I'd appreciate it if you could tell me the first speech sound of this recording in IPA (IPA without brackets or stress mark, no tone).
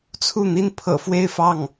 t͡sʰ